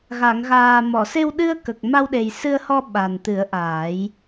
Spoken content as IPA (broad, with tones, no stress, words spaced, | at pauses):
ɣa˨˩˨ŋɣaː˨˩ mɔ˨˩˨se˧wɗɨ˧ə̯kə˨˩k̚ ma˧wɗe˨˩jsɨ˧ə̯hɔ˧ ɓa˨˩nt̪ɨ˨˩˦ə̯ʔaː˨˩˦j